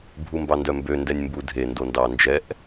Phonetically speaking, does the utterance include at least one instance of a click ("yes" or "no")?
no